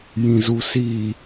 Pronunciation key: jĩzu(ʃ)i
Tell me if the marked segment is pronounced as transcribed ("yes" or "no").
no